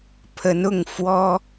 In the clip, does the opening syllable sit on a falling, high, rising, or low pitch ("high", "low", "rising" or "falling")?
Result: rising